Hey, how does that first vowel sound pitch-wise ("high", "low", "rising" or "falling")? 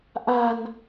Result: low